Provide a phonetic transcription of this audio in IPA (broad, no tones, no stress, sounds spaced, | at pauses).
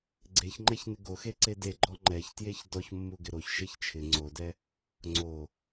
ɡ͡ǀ e ç ŋ͡ǃ ɛ ç n ɪ ɡ o x e ǀ e d e ɡ͡ǃ ɔ ŋ͡ǃ ɛ ç t j e ç d ɔ ç mː u ɡ ɪ ɾ o ç ʃ e ç t͡ʃʰ ɪ ŋ͡ǀ o d ɛ | ŋ͡ǀ o